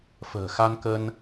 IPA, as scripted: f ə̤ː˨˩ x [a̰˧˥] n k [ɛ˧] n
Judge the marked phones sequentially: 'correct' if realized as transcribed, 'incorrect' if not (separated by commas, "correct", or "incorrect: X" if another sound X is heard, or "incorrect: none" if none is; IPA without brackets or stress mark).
incorrect: a˧, incorrect: ə˧